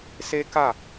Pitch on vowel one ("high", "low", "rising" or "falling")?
high